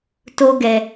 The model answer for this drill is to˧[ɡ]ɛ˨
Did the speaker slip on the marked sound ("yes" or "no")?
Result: no